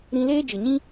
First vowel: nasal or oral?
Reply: nasal